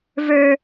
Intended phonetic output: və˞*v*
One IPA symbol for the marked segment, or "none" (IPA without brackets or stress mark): none